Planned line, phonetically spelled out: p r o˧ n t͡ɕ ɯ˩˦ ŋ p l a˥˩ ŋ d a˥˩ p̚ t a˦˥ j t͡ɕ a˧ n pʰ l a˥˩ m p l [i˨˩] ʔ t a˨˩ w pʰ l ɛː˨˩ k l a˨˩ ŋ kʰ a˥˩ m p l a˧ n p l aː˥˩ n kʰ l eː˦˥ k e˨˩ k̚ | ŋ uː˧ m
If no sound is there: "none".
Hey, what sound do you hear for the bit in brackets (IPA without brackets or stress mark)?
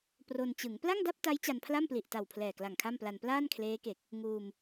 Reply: i˨˩